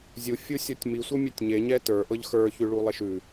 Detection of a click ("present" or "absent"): absent